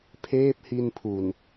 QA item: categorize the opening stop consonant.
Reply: aspirated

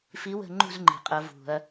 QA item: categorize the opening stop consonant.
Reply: click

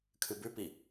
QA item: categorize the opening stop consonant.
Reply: aspirated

